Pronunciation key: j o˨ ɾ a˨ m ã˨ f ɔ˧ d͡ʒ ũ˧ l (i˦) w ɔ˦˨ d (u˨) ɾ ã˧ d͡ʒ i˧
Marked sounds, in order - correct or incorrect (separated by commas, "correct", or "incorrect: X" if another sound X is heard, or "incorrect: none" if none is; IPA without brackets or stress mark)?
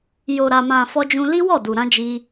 correct, correct